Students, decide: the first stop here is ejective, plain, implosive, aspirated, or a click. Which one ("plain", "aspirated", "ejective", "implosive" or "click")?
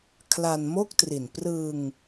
aspirated